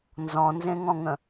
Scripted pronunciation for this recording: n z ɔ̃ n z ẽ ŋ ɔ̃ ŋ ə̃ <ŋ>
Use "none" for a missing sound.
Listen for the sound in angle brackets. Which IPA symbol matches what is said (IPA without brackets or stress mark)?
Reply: none